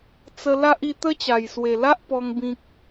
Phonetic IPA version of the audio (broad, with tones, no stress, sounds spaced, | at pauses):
t͡s ə˧ l a˦ ʔ i˧ t̪ ə˦ t͡ɕ a˨˩ j s w e˨˩ l a˦ ʔ p ɔ˧ ŋ b ĩ˦ k̚